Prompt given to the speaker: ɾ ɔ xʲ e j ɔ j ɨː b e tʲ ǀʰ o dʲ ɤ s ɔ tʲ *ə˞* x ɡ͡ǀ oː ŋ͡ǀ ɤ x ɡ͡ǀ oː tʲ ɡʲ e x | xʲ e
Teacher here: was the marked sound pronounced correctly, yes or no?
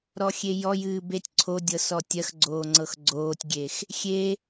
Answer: no